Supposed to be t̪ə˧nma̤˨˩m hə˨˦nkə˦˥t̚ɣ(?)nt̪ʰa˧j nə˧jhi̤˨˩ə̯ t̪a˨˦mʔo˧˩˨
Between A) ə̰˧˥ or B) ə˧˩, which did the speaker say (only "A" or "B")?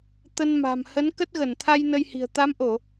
B